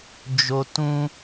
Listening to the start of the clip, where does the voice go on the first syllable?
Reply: high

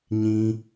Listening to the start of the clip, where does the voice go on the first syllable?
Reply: high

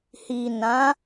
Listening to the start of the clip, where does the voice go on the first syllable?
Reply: low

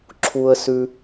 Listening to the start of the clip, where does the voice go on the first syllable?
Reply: high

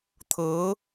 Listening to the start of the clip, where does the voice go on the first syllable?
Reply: rising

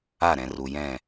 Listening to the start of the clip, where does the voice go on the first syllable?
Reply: falling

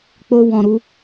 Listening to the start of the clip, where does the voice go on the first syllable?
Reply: high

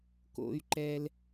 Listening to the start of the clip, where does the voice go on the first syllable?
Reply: high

